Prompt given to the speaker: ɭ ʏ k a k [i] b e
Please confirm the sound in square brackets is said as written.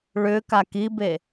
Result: yes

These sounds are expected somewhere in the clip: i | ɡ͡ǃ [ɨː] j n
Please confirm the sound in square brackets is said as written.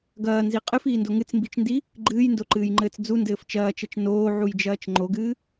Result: yes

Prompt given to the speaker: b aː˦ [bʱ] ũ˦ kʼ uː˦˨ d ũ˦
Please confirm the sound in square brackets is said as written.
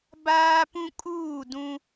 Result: no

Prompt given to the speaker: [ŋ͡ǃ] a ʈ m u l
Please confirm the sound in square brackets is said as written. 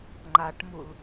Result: yes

